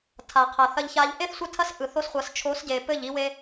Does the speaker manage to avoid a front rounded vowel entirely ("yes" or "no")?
yes